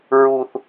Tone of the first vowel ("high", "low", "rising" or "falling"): high